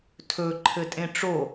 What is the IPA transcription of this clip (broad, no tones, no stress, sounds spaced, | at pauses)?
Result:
tʰ ɵ ǃʰ ɘ tʼ ẽ ʈ͡ʂ o